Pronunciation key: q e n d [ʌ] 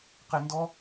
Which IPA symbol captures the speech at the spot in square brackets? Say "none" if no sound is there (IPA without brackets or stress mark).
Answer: ɔ